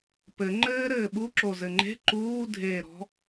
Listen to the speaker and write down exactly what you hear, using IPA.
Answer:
p ɘ ŋ͡ǃ ɘː ɾ ɘː ɓ u ǁ o z ɘ ŋ͡ǃ e̤ ǃ uː dʱ eː ɾ ɔ̤

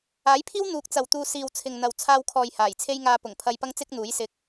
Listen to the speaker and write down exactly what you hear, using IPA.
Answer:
aː˨˥ j pʰ iː˥ w n̪ uː˨˥ k̚ t͡s ɐ˨ w t̪ uː˧ s iː˨ w t͡sʰ ɪ˨ ŋ n̪ ɐ˨ w t͡sʰ aː˧ w kʰ ɔː˨ j h aː˨˩ j t͡sʰ e˥ j ŋ aː˧ p ʊ˨˩ ŋ pʰ ɐ˧ j p ɐ˥ ŋ t͡s ɪ˥ k̚ n̪ uː˨˥ j s ɪ˧ k̚

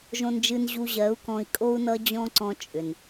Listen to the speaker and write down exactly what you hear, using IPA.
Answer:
ʒ õ˧ n d͡ʒ ɨ˧ n ʑ u˧ ʑ ɜ˨˦ u̯ k ɔ̃˧ i̯ kʼ o˦ u̯ n ʌ˦ d͡ʑ ɔ̃˦ ǀ ɔ̃˧ t͡ʃʼ ʏ˨ n

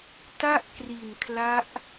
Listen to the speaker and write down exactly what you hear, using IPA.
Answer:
t a˥˩ ʔ k r i˨˩ n kʰ l a˦˥ ʔ

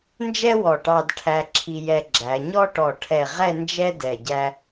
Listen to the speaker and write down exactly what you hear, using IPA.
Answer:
n d͡ʒ ɛ˥ w ɔ˧˩ ʈ ɑ˧ d ʈʰ æ˧ ǁʰ i˧ j ɛ˧ ɡ͡ǁ æ˩˧ ɲ ɔ˥ ʈ ɔ˧˩ ʈʰ ɛ˧˩ ʁ ɛ˥˧ n d͡ʒ ɛ˥ d ɛ˧˩ ɟ æ˥

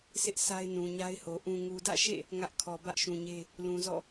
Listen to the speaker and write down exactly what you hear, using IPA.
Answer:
sʰ ɪ˦ ʔ sʰ a˦ ɪ̯ n ũ˨ ɲ a˦ ɪ̯ h o˨ ʔ ũ˨ ŋ u˨ d ä̰˦˨ ʃ ḛ˦˨ | ŋ ä˦ ʔ kʰ ɔ˨ b ä˦ ʔ ʃ ũ˨ ɲ e˦ | l ũ˨ z ɔ̰˦˨

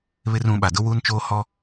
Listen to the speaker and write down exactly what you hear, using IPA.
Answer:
β ɪ˦ r ũ˨˦ ɓ a˨ d ʊ˦ w uː˦ n t͡ʃ oː˦ h ɔ˦

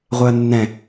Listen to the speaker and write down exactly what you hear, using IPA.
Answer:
ʁʷ e ɐ̯ nː ɛ̃

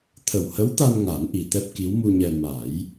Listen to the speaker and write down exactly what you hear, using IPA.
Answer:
t̪ʰ ə˨˩ w h ə˧˥ w t̪ a˧ n ŋ a˨˩˦ n ʔ i˨˩ t̪ ɛ˦˥ p̚ k i˧˥ w m u˧ ɲ ɛ˧ m a˨˩˦ j

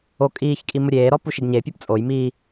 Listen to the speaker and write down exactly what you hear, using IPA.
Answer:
o kʼ iː ç kʼ i m ʊ ɾʲ eː ɾ ɔ p u ʃ i ɡ ɲ e pʲ ɔ p t͡sʼ o j m iː

